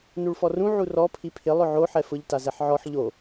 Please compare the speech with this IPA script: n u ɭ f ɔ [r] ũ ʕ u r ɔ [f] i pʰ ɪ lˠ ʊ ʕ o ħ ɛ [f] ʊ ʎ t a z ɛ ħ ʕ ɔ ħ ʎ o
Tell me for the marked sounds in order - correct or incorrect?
correct, incorrect: pʰ, correct

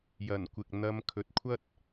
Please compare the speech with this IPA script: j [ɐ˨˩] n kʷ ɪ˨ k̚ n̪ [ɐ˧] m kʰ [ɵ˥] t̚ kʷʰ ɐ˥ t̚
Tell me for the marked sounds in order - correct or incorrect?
correct, correct, incorrect: ɵ˨

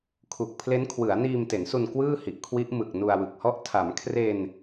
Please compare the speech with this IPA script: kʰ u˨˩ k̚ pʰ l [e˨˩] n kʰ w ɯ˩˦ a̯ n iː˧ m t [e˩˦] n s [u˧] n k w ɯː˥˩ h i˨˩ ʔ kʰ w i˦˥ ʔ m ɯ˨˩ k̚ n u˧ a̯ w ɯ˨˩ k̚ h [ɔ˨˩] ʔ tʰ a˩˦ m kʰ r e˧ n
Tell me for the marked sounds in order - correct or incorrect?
incorrect: e˦˥, correct, correct, incorrect: ɔ˥˩

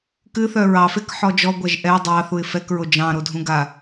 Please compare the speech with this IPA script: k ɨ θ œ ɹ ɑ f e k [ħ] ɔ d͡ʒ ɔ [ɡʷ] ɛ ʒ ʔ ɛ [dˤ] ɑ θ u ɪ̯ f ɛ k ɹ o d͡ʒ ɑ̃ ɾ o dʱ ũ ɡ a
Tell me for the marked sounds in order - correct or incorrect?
correct, correct, correct

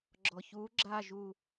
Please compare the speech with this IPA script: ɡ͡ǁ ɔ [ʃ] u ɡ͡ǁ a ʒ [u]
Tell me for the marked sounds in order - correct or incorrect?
incorrect: ç, correct

